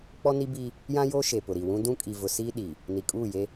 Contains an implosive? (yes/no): yes